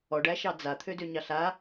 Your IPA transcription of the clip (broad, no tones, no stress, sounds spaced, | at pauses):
ɔ ɖ æ ʃ ɑ d͡z a t̪ʰ ø d ø ɲ ɑ ɬ a